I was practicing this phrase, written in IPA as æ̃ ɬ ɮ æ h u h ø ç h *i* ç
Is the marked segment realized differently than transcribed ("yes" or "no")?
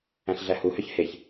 yes